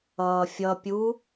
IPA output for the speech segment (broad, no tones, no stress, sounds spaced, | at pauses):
ʌː fʲ ʌ pʲ u